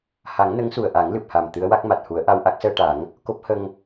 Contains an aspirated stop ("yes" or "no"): no